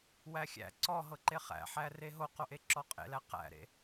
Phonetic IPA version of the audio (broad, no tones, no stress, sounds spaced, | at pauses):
w æ xʲ æ̰ ǀ ɔ ɦ ɤ ǃ e χ æ̰ ħ æ r e ɦ o q o ʔ e ǁ ɔ qʼ ḛ l æ q æ̰ ɾ ḛ